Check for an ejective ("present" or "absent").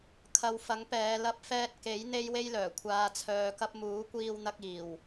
absent